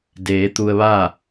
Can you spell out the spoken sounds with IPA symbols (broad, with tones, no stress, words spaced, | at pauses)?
deː˩˧t̪u˧ə̯ʋaː˥˨